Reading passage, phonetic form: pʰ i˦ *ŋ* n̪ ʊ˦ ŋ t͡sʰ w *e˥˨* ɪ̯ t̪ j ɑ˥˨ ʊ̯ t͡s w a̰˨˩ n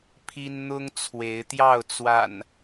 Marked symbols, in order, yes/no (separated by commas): no, no